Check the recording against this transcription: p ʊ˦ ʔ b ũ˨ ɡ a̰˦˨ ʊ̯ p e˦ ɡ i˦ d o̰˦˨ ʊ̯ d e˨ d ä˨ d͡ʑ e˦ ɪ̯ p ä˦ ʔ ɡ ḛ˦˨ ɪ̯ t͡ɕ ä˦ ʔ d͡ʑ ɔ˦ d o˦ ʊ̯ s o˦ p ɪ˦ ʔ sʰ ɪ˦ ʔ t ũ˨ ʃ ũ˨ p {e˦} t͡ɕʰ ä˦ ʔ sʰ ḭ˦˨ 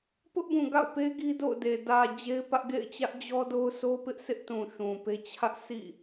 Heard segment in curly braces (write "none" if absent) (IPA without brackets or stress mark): e˦